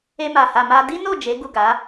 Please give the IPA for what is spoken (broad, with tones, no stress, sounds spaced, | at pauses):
e˧ m a˨ h a˨ m a˧ d i˦ n o˦˨ d͡ʒ e˨˦ ɡ u˦˨ ɡ a˨˦